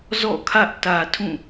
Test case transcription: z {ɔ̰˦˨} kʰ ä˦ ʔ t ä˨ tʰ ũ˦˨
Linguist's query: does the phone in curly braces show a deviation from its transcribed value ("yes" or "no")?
no